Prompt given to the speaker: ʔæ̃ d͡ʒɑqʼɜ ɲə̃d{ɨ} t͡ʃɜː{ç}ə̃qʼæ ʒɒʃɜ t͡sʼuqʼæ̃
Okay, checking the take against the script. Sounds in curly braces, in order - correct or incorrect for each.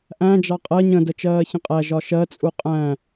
incorrect: ə, correct

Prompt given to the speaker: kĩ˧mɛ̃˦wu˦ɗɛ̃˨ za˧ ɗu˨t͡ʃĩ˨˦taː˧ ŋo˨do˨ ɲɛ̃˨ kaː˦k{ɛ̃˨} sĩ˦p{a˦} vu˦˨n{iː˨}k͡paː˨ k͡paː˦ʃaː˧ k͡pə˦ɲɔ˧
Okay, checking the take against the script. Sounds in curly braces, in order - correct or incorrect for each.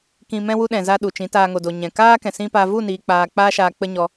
correct, correct, correct

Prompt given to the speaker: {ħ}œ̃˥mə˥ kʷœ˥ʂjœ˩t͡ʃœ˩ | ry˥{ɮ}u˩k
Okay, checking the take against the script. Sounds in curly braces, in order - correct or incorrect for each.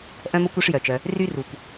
incorrect: ʔ, incorrect: r

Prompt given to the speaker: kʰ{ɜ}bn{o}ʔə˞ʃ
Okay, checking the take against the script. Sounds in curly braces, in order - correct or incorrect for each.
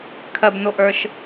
correct, correct

